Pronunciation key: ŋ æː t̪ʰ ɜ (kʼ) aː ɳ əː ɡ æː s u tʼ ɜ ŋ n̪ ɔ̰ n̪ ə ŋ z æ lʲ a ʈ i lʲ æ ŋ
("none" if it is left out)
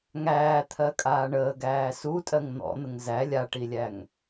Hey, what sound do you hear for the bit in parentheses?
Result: kʼ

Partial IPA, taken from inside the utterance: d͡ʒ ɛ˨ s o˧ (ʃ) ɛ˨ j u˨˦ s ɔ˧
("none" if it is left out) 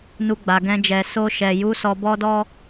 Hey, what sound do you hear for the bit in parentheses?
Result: ʃ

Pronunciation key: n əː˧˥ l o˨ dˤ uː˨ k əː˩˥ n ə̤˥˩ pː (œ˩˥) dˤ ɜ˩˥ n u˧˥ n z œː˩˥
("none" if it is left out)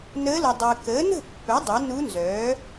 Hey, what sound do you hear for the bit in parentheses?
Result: œ˩˥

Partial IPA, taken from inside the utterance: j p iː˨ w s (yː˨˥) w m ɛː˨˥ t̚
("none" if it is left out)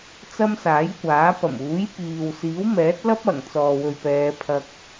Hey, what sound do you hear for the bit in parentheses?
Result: iː˨˥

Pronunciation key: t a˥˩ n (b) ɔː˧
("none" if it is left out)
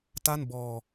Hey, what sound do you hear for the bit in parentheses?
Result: b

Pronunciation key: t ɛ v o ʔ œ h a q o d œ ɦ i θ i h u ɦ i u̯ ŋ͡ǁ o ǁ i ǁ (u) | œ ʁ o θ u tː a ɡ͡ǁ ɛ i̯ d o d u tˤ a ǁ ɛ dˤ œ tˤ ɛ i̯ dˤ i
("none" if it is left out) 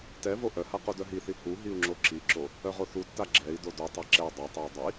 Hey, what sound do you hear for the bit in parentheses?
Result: o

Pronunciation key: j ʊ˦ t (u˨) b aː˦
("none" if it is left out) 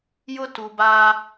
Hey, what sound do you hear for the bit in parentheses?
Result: u˨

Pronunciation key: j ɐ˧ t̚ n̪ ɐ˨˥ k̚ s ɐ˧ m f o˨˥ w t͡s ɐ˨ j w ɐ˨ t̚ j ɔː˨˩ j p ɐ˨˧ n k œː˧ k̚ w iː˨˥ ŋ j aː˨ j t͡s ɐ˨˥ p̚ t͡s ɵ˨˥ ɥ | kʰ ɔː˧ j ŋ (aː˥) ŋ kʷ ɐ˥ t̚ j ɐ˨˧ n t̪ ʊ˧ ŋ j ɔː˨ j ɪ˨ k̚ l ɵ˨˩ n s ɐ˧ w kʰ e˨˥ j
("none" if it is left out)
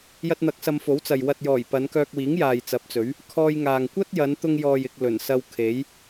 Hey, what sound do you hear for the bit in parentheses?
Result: aː˨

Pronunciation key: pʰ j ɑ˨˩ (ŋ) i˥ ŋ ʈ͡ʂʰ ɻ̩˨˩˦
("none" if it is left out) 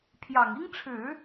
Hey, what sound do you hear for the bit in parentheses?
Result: ŋ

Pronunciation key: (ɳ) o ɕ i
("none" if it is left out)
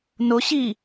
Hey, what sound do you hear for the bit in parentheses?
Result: n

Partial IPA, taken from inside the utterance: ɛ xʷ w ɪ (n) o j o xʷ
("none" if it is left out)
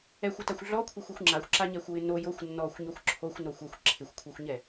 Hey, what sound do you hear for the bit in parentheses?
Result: n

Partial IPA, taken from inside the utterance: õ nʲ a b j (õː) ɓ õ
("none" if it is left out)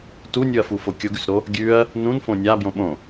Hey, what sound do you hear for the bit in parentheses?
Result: õ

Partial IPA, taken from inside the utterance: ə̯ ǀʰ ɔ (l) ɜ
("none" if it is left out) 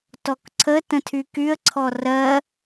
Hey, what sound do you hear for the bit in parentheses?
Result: r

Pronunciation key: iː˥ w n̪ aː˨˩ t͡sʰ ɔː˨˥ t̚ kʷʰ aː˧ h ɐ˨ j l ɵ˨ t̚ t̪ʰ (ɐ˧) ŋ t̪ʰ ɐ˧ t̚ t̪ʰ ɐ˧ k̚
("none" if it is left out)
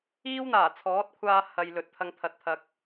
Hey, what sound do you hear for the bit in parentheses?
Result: ɐ˧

